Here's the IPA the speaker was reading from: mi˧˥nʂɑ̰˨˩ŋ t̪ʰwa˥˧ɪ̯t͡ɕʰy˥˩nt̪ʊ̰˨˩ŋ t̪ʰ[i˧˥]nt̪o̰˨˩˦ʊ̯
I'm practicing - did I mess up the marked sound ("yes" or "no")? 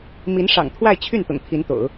no